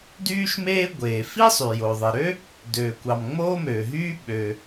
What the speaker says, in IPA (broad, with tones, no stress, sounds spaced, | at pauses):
d yː˥ ʃ m eː˥ ɡʷ eː˩ f i˥ sˤ y˩ j o˩ ðˤ i˩ ɾ ø˥ | d øː˩ kʷ ɑ˩ m ŋ͡m oː˥ m øː˩ ɦ yː˥ ɓ ø˩